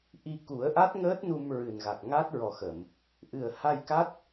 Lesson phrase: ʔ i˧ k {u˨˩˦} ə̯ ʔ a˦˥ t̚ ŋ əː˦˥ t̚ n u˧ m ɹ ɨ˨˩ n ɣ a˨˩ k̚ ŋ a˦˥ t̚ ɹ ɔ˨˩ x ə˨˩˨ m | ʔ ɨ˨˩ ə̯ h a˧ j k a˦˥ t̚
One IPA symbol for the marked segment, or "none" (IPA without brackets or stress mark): u˨˩˦